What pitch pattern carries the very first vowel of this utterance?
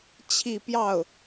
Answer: falling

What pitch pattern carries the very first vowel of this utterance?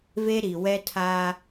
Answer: high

